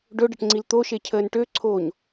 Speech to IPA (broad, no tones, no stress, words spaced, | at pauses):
ɖɵɖəʈŋ͡ǀil t̪oʃecʰəːn ʈøǀʰoːɲ